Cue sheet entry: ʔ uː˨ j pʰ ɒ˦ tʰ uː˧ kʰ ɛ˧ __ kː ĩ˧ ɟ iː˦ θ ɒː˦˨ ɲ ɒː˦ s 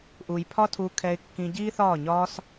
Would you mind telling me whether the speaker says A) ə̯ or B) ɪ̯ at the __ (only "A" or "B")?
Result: B